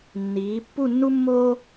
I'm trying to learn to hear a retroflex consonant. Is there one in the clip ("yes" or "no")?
no